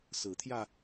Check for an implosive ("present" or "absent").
absent